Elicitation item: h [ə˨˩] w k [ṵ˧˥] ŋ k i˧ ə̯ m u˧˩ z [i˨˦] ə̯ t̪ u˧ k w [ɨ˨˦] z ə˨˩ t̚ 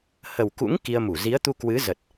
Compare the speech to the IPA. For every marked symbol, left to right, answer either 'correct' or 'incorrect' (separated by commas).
correct, correct, correct, correct